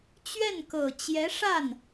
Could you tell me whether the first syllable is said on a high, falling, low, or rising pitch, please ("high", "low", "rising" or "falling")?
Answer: falling